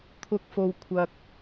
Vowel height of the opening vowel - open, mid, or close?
close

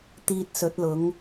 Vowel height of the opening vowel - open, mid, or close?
close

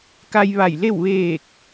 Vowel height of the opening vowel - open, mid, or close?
open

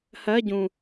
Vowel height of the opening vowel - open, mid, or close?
mid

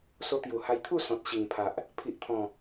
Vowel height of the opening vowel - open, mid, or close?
mid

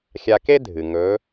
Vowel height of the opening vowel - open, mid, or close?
open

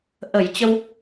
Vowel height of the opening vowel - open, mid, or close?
mid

